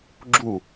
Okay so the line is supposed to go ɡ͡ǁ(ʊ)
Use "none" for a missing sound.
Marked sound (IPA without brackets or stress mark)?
u